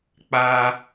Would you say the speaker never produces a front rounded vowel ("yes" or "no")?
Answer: yes